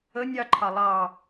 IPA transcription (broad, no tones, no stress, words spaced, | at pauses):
ə nʲɑǃʰɑ lˠɑ